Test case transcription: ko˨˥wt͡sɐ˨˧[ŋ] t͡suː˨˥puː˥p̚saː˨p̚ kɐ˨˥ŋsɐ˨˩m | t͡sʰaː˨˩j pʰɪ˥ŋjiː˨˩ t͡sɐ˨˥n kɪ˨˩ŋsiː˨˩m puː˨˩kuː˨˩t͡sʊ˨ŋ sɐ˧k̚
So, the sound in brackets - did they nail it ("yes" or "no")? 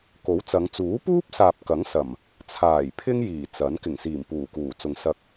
yes